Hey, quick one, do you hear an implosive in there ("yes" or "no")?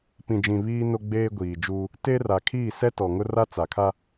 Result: no